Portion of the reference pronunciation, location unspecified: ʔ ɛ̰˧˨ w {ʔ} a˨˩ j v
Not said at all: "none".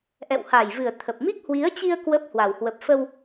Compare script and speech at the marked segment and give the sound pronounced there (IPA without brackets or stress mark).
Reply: h